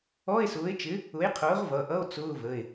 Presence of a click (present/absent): absent